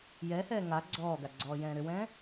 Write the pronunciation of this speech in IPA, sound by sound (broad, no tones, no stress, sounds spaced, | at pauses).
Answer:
j ɛ h ɛː ŋ a ɡ͡ǀ ɔː ɡ a ɡ͡ǀ ɔː j ɛ̃ː ɾ ʏ w ɛ̃ː